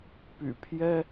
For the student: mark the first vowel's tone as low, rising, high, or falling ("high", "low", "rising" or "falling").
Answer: low